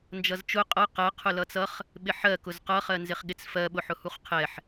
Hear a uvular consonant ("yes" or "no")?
yes